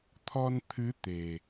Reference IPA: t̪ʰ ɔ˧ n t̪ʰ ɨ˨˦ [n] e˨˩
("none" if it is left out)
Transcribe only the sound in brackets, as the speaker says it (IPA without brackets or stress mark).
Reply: t̪